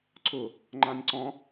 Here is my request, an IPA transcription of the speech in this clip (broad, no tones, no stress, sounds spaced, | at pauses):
ǀ ʊ | ŋ͡ǃ ã nʲ ǀ ɔ̃